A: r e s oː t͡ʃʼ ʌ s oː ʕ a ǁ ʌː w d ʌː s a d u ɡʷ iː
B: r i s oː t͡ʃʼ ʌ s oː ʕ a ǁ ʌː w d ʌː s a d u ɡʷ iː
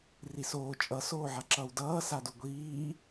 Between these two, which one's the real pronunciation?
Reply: B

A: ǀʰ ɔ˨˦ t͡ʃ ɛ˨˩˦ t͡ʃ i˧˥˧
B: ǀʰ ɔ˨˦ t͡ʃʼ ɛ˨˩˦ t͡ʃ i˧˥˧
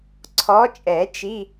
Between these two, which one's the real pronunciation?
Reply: B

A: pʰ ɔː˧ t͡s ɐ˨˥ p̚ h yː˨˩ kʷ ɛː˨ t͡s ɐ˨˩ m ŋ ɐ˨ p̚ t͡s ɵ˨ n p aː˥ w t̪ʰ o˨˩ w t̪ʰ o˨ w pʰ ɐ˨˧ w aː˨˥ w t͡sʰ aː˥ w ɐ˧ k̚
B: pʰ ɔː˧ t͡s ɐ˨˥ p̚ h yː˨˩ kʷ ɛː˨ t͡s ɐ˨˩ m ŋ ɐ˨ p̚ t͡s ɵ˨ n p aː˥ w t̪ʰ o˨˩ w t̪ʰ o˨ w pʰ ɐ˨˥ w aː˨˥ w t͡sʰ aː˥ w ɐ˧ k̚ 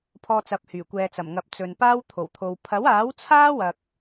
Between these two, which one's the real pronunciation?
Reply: B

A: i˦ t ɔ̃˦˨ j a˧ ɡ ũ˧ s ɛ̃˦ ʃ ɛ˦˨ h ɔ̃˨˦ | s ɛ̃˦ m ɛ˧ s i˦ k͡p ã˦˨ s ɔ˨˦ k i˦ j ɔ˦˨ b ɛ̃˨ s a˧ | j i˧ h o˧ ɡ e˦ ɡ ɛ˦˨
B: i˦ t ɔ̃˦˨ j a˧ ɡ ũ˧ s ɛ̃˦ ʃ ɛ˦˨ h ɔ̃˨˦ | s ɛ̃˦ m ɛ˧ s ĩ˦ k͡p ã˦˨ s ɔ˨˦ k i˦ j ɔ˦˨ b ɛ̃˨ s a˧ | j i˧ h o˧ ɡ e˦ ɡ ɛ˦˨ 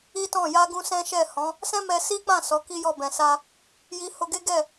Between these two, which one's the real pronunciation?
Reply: A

